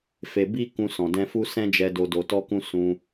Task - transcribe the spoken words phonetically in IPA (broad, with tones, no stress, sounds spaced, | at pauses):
f e˧ b i˦ k ũ˧ s ɔ̃˨ d ɛ̃˧ f u˦ s ɛ̃˦ d͡ʒ ɛ˧ d o˧ d o˧ t ɔ˦ k ũ˦ s ũ˧